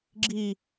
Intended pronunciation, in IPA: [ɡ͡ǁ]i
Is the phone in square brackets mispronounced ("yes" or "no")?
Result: no